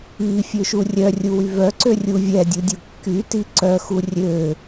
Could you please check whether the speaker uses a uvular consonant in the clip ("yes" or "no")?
no